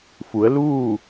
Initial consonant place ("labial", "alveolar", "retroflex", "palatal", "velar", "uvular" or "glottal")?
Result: labial